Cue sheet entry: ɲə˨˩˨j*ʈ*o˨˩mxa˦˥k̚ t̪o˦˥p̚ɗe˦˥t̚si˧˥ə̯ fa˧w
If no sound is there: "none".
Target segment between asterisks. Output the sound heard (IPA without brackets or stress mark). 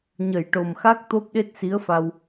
ʈ